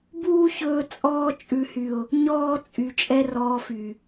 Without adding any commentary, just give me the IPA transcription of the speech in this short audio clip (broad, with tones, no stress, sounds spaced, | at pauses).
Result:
b uː˦ ç ɵː˧ t͡sʼ ɔː˧ t͡ʃʼ ʉ˨ h y˨ ʊ̯ | ɲ ɔː˦ t͡sʼ y˨ t͡ʃʼ ɛ˦ r ɔː˧ f y˨